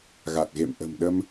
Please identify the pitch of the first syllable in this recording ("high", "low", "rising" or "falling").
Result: low